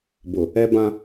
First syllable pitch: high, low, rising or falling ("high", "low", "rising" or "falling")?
low